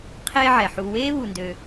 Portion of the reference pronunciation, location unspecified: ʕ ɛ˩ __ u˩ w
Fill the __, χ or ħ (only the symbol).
ħ